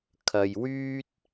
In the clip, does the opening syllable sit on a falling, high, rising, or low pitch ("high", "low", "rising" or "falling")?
low